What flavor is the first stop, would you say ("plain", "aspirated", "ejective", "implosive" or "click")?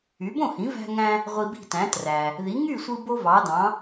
plain